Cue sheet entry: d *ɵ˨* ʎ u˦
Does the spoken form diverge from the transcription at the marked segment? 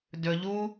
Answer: no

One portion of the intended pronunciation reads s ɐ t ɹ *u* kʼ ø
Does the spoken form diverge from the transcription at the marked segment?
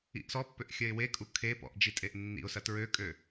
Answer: yes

